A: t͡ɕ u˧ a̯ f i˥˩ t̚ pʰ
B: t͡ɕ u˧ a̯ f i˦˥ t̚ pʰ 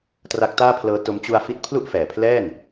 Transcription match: B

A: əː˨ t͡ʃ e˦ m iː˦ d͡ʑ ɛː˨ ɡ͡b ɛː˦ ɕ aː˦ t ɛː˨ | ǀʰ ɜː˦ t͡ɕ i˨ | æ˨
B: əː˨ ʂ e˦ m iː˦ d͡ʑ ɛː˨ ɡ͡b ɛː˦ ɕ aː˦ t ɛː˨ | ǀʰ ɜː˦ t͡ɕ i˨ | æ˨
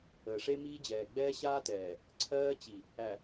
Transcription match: B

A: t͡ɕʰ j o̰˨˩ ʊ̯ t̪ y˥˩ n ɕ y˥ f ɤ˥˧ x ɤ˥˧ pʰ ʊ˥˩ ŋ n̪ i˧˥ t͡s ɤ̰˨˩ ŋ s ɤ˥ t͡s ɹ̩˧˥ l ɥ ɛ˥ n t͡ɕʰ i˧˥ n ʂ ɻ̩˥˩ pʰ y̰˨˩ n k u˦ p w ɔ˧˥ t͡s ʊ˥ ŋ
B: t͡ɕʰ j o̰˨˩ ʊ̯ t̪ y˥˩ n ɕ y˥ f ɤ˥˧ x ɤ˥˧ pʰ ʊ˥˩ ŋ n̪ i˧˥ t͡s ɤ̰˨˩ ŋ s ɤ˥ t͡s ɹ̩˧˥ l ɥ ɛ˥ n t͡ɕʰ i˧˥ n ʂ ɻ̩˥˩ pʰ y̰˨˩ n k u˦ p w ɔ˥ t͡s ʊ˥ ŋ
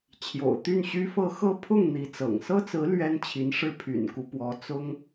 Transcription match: A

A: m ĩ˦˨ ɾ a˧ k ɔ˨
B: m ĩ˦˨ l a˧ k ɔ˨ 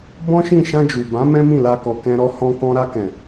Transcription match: B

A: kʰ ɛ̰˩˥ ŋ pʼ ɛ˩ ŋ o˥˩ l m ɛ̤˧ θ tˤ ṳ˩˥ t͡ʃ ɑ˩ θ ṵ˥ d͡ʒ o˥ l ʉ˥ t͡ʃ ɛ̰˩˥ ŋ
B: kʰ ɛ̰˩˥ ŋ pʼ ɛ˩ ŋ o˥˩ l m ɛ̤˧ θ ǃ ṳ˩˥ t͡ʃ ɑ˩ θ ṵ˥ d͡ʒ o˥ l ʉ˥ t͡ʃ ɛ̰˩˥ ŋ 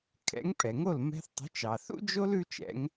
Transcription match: A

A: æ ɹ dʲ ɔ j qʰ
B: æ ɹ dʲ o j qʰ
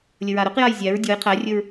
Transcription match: A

